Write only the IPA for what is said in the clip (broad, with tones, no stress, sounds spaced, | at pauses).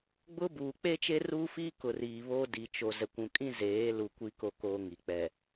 ɡ͡b ʊ˦ b uː˨ k͡p e˦ t͡ʃ e˦ r uː˦ f iː˦ k ʊ˨ r iː˨ β oː˦ d i˨ t͡ʃ o˨ z ɛ˨ kʷ ũ˨ kʼ ĩ˦ z eː˨˦ l u˨ kʷ i˦ k o˦ k oː˦ ŋ i˨ k͡p ɛ˨